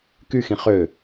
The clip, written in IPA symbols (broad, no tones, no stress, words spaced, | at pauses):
kyxĩ χø